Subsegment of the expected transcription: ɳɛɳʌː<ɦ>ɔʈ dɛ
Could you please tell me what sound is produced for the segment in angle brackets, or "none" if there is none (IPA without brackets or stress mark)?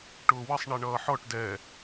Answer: ħ